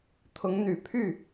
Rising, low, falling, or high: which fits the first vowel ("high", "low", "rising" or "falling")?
rising